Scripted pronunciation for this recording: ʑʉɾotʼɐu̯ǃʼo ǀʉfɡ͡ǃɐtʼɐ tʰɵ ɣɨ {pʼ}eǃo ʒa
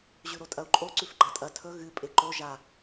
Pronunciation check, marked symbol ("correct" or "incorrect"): correct